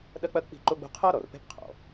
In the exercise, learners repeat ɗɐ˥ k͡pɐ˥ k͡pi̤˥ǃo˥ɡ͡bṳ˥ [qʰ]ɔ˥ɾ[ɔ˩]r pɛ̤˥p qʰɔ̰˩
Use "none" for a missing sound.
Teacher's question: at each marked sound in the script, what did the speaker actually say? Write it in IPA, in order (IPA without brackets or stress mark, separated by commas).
qʰ, ɔ˩